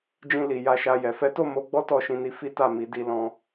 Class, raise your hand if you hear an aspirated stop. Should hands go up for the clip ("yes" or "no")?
no